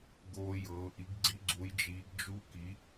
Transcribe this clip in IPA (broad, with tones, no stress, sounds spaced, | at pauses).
ɡ oː˦˥ j ɤː˨˥ ʔ i˨˥ ɡ ɡ͡ǀ i˦˥ ɡ͡ǀ u˨˥ j d͡ʒ iː˨˥ ɡ d͡ʒ u˦˥ k i˨˥